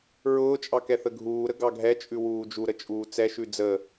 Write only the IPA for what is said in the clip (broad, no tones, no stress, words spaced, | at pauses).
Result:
ɹʊːt͡ʃʼɑ kɛθəɡʱuːɾə ɡɑɡʱɛt͡ʃʼʉ wuːd͡ʒuɾə t͡ʃʼuːt͡sɛʃʉ d͡zə